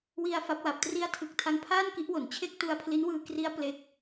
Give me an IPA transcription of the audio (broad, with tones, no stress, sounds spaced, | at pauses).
w i˧ a̯ f a˦˥ p̚ w a˨˩ p̚ t r i˦˥ a̯ tʰ ɯ˨˩ k̚ tʰ a˦˥ ŋ pʰ aː˥˩ n k i˦˥ ʔ w o˩˦ n t͡ɕʰ e˥˩ k̚ t u˧ a̯ pʰ l i˦˥ n w ɯː˧ k r i˦˥ a̯ p l e˦˥ k̚